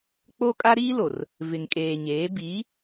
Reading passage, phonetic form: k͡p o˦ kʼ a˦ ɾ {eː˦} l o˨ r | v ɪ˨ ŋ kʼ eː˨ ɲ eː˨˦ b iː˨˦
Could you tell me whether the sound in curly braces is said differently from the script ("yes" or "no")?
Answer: yes